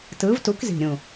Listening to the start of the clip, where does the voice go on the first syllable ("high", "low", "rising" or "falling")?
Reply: rising